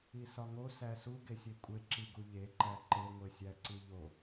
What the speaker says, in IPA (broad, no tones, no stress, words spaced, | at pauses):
isɒŋo sæsu ɡesʲekʷʼe ǁiɡuʎe ǃæǃe ŋʷesʲæǀiʎo